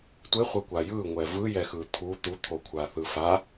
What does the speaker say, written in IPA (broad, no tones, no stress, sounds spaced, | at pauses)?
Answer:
tʷ e χʷ ʌ kʷ a j ɯ ŋʷ ɛ v ɯ j ɛ x ɯ t̪ʰ u t̪ u t̪ʰ o kʷʰ a θ ɯ f a